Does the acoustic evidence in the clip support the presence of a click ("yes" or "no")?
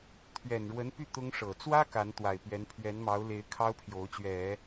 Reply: no